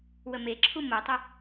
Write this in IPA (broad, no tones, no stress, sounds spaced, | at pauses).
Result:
w ə m e ǁʰ u m o tˤ ə